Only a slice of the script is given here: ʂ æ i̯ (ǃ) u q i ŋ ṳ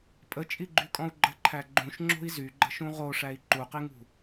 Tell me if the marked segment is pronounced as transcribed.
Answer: yes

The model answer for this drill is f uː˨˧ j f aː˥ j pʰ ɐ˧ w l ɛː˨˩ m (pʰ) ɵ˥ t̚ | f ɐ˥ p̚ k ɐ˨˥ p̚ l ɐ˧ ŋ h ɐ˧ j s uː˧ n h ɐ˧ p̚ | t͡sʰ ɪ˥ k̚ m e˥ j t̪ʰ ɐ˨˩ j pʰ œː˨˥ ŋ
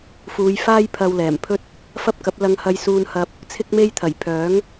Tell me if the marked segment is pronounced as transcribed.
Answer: yes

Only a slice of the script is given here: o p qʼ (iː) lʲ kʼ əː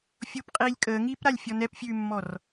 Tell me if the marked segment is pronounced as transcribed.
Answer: yes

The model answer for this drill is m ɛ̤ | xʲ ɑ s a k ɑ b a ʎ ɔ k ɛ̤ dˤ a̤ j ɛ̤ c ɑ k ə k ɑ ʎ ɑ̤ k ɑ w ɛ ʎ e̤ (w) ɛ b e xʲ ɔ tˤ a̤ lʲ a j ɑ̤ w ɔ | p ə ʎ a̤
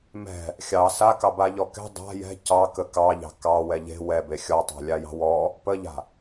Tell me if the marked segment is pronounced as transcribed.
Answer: yes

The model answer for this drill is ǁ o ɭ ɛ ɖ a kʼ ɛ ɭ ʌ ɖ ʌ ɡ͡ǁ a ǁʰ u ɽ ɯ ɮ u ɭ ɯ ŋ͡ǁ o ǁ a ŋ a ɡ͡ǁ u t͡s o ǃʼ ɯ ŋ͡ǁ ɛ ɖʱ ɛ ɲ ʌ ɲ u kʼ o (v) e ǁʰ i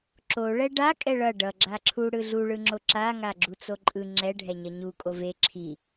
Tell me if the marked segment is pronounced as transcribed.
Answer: yes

